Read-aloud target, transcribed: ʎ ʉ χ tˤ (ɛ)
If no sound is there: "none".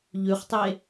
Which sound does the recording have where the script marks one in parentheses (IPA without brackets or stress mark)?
e